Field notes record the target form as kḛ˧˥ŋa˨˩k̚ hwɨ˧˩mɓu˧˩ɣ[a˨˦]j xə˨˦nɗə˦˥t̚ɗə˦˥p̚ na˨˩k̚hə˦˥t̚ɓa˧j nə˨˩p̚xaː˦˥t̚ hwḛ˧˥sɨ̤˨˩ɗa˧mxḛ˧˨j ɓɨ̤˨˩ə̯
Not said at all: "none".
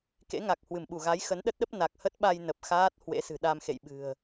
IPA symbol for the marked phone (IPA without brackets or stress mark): a˨˦